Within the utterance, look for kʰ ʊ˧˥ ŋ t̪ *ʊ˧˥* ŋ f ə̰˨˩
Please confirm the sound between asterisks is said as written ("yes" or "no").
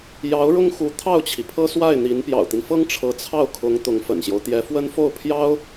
yes